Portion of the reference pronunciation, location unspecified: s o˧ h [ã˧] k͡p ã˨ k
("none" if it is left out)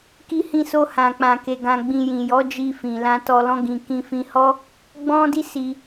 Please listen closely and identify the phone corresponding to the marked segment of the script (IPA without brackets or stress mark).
ã˨